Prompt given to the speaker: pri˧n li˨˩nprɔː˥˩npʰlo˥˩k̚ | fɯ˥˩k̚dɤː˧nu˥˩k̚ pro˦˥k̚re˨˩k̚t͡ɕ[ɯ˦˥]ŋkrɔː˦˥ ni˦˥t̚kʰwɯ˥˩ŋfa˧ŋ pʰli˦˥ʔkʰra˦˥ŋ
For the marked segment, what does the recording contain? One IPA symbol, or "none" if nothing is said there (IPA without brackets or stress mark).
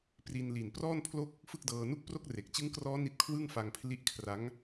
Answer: ɯ˦˥